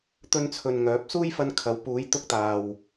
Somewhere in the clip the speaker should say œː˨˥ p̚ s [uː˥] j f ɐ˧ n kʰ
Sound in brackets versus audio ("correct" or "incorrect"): correct